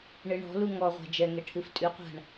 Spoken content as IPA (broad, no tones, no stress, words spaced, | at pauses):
ɳɨɳɔ̤lu ŋɔʁʷa̤ d͡ʒɛŋɛ ʈʰɨftʼʉqʷa̤ɳ